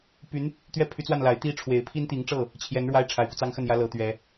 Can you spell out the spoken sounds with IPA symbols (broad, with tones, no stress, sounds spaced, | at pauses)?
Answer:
p y˧˥ n | t̪ ɥ ɛ˥˩ pʰ y˧˥ t͡s w a˥˩ n l a˨˩ ɪ̯ t̪ i˥˩ ʈ͡ʂʰ w e˧˥ ɪ̯ pʰ i˥ n t̪ i˧˥ ŋ ʈ͡ʂ ɤ˥˩ | t͡ɕʰ j ɛ˧˥ n ɻ w a˥ ɪ̯ ʈ͡ʂʰ a˨˩ ɪ̯ p u˦ t͡s ɑ˥ ŋ x ə˥˩ n j ä˥ l ɤ˧˥ t̪ ɥ ɛ˧˥